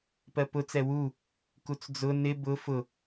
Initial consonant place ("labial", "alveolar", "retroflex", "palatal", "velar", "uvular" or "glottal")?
labial